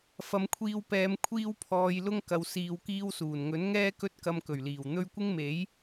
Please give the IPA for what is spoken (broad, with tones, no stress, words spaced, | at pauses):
fɐ˨˧mkʷʰiː˧wpɛː˨˧m kʷʰiː˥wpʰɔː˧j lʊ˥ŋkɐ˨˧w siː˧wkiː˥wsuː˨˩n ŋɵ˨˥nŋɛː˥kɵ˥t̚kɐ˧m kɵ˨˩ɥliː˨˩w n̪ɵ˥ɥ kʷɪ˥ŋme˨˥j